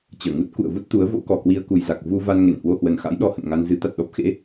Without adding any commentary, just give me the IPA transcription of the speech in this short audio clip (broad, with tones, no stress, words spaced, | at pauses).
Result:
t͡ɕəː˧˩ŋu˦˥t̚ kṵ˧˨ə̯vu˦˥t̚t̪u˨˦ə̯ vo̰˧˥kɔ˨˩kwi˧ə̯ ku˨˩jza˨˩k̚ vu˧va˧n ŋe˧˩nhwo˧hwə˨˩nxa̰˧˥j ɗɔ˧hə̰˧˨nŋa˧n zɨ˨˦t̪a˨˩t̚ ɗɔ˦˥p̚xḛ˧˥